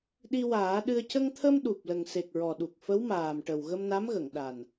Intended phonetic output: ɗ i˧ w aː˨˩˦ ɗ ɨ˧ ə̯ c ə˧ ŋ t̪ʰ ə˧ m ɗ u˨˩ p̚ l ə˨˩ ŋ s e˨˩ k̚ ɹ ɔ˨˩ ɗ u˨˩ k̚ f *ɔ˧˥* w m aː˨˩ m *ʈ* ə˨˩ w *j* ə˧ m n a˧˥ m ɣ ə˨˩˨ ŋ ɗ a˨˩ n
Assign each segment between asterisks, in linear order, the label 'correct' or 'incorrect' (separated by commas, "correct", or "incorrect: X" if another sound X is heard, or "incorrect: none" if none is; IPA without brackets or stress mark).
incorrect: ə˧˥, correct, incorrect: ɣ